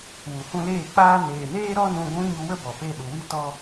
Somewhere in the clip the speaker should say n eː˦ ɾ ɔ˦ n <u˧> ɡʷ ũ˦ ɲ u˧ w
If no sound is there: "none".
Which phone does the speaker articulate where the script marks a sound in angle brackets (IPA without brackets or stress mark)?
ũ˧